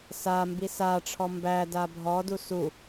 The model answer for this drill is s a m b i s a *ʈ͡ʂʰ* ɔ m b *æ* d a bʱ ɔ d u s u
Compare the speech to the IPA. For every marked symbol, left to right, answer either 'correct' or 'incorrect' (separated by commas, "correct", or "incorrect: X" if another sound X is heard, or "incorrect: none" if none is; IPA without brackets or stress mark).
correct, correct